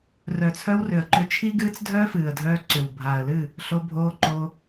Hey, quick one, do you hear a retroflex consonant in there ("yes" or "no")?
no